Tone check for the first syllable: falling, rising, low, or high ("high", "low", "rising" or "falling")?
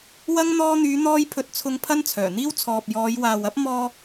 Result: high